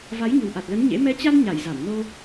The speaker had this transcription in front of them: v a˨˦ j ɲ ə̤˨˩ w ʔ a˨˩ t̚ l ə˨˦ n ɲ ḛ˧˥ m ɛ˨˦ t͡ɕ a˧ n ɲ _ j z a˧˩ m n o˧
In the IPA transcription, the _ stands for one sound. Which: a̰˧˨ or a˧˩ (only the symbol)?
a˧˩